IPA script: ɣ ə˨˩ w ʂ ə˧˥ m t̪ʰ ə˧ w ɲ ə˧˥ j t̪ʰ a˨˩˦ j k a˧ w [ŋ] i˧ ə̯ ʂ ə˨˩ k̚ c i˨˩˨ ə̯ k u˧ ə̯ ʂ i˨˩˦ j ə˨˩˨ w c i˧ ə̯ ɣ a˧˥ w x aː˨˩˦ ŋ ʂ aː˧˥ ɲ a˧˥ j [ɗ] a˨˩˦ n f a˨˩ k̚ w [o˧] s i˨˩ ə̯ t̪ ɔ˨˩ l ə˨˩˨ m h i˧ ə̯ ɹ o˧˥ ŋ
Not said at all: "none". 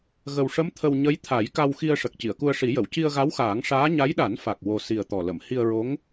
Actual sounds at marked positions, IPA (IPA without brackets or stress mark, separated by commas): x, ɗ, o˧